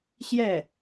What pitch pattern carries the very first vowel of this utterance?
falling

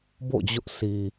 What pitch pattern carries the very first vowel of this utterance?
falling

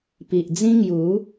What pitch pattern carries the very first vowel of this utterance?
low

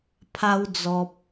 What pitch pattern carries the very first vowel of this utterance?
high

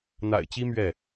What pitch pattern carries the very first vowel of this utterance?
low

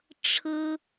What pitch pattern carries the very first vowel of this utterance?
high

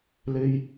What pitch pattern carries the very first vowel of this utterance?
high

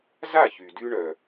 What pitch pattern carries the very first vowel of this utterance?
falling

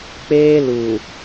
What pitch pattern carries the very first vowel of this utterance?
high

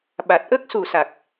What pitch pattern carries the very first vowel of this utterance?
low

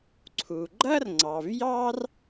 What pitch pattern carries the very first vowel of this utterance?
low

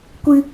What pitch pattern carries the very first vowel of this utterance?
high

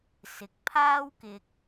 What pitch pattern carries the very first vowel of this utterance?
low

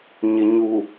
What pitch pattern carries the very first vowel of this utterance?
low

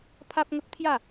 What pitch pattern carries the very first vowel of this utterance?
high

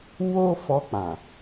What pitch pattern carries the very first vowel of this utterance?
high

